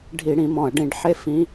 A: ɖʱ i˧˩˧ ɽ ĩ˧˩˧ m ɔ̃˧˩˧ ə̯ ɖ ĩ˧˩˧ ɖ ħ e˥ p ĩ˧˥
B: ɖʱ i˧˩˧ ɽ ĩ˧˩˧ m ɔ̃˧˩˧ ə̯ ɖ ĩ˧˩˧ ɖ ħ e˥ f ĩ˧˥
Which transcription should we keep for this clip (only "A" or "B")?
B